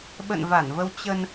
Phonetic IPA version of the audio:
ɓ ə̰˧˨ n v a˧˩ n v ə˧ w t͡ɕ ə˧ n

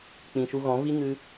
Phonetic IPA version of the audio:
k͡p ĩ˨ ʃ u˧ ɣ ɔ̃˨˦ v i˦ ŋ ɨ˦

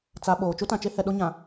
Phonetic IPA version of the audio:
t͡s a˨ ɓ oː˨ t͡ʃ u˦ t ã˨ t͡ʃ e˦ h ɛ˨ ɗ o˦ ɲ ã˨

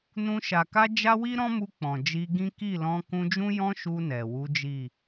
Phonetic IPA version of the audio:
n ũ˧ ʃ a˨ k a˧ d͡ʒ a˦ w i˦ ɾ ɔ̃˦ m u˧ k͡p ɔ̃˨ d͡ʒ i˧ ɡ ĩ˦ k i˦˨ l ɔ̃˧ k ũ˧ d͡ʒ ũ˦ j ɔ̃˦ ʃ u˧ n ɛ˨ w u˨˦ d͡ʒ i˦˨

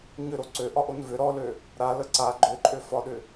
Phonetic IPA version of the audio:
ɲ ʏ ɾ o ǀ ø ʔ ɒ ʔ o n v ʏ ɾ ɔ l ø | ɾ a l ə ǀ a ɡ͡ǃ ø ǃʼ ø f ɒ ɗ ʏ

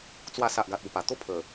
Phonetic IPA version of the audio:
t͡s w a˧ s a˨ ʔ ɡ a˨ t̚ u˨˩ p a˨˩ t̪ o˥˧ pʰ ə˨˩

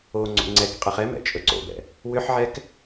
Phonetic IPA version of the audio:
o ŋ͡ǀ o̰ ŋ͡ǀ ɛ k qʼ ɛ χ ɛ m ɛ̰ t͡ʃʼ ɵ ǀ o̰ b ɛ̰ | w ʏ ħ ʕ ɛ k

